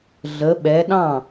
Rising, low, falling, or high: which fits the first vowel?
rising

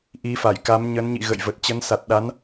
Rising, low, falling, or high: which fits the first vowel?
rising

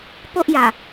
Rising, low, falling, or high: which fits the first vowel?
high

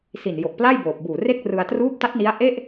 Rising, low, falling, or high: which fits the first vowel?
low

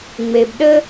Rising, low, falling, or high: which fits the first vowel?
low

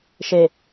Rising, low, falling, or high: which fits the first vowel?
low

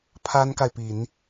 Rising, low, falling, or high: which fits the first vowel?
high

